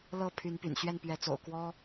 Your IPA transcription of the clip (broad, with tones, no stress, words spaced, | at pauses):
lɤ˥˨ pʰy˨˦n py̰˨˩nɕɥɛ˥˨npɥɛ˨˦t͡so̰˨˩ʊ̯ kwɔ˦